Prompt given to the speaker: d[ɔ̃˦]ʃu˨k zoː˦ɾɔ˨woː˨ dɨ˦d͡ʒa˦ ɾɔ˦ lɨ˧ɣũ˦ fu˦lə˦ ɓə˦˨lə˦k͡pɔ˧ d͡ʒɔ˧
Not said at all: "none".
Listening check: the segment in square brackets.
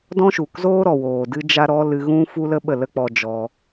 ɔ̃˦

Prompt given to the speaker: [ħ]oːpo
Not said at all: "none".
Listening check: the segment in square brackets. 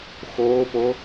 x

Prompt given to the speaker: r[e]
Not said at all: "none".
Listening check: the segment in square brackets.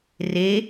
e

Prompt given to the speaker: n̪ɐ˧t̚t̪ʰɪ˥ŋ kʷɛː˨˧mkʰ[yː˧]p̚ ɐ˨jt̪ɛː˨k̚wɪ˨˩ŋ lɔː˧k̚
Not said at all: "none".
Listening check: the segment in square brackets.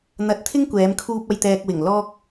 uː˧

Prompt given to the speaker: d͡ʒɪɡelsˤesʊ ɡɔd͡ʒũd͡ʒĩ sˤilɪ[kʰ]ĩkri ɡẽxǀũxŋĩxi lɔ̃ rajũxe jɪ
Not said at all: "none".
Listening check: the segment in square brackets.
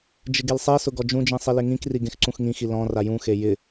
ŋ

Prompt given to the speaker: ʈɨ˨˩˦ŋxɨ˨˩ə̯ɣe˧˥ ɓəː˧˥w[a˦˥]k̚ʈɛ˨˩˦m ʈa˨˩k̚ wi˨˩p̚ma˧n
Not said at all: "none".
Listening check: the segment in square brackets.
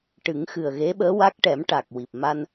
a˦˥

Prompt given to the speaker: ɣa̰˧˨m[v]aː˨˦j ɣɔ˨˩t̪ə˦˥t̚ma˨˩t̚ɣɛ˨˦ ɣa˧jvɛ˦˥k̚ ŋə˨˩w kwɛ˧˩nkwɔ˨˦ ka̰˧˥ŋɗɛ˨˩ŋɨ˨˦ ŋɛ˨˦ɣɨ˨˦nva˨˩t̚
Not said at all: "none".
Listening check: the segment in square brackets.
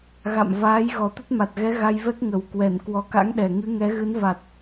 v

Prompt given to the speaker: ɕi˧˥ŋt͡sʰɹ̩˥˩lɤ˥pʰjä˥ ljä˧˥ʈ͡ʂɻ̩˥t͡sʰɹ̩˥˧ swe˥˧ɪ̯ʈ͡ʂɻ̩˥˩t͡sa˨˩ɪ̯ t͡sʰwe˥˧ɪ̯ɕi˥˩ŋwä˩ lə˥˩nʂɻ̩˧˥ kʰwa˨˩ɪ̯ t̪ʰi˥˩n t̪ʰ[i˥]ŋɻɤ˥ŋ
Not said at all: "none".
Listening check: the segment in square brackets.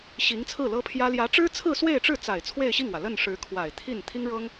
i˥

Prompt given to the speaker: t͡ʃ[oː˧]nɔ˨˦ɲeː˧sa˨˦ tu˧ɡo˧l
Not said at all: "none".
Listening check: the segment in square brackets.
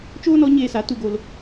oː˦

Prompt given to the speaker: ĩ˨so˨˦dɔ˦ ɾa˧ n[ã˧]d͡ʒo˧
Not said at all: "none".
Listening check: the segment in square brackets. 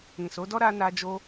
a˧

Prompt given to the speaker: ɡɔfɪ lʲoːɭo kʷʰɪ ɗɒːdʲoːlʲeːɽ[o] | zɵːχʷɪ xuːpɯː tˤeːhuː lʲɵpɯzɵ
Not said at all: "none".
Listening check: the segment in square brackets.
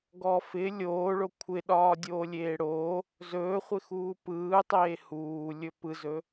oː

